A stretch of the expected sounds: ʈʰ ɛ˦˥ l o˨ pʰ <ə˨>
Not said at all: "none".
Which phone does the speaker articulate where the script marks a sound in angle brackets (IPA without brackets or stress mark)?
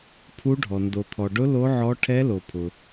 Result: ʊ˨